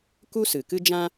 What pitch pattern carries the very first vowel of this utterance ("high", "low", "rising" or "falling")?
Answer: high